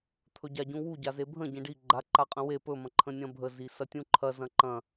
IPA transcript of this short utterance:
t̪ʰ ɵ ɟ a ɟ ũ w u ɟ a z e bʱ ə̃ ɟ ẽ ɖ i ɡ͡ǃ a ǃ a qʼ ə̃ w e p ɵ m ɐ̃ ǃʰ ə̃ nʲ ɐ̃ bʱ ə z i s ɐ tʲ ũ ǃʰ ɐ z ɐ̃ ǃ ɐ̃

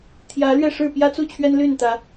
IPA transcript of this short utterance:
t̪ʰ j ä˨˦ l ɥ ɛ˥˨ ʂ ɻ̩˥˨ p j ä˦ t͡s u˥˨ t͡ɕʰ ɥ ɛ˦ n l y˥˨ n t̪ ä˨˦

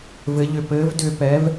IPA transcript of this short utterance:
v ɘ˨˥ ʎ ʏ˧ p ɘː˨˥ v d ʏː˧ p ɛ˨˥ v

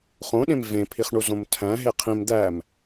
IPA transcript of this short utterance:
χ õ ɗ ẽ m v ẽ pʰ i χ ɳ u z õ m tʰ æ̃ ɦ e qʰ ĩ m d̪ æ m

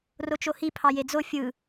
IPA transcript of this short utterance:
r o t͡ʃ o h i pʰ ɑ j e d͡z o fʲ ɯ

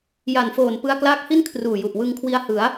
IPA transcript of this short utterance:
j a˨˩ n f oː˨˩ n p ɯ˧ a̯ k l aː˦˥ k̚ h i˥˩ n kʰ r uː˨˩ j u˨˩ ʔ w ɯ˧ ŋ kʰ w i˧ a̯ h ɯ˩˦ a̯

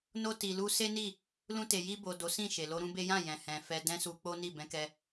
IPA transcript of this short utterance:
n o˧ t i˨ l u˧ s e˦ n i˦˨ | l ũ˧ t e˨ j i˧ b o˨ d o˨˦ s ĩ˦˨ ʃ e˨ l o˧ ɾ ũ˦ b e˦ j ã˦˨ j ɛ̃˨ h ɛ̃˨ f ɛ˧ d ɛ̃˦ s u˧ k͡p o˦ n i˦˨ b ɛ̃˧ k ɛ˧

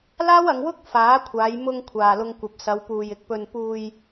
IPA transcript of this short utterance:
l aː˥ w ɐ˨˧ ŋ w ʊ˥ k̚ f aː˨˥ kʷʰ aː˨˧ j m ʊ˧ ŋ kʷʰ aː˨ l ʊ˧ ŋ kʷ ɐ˨ p̚ s ɐ˨˧ w p uː˨ j ɪ˨ k̚ p ɵ˨ n p uː˨ j

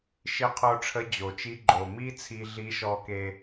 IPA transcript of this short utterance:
ʃ ɪ˧˥ qʰ o˧ ʈ͡ʂʰ ə˧˥ d͡ʑ o˩ t͡ʃ i˧˥ ɡ͡ǃ o˩ m i˥ t͡sʰ i˧ ɮ i˧˥ ʃ ɔ˧ k e˧

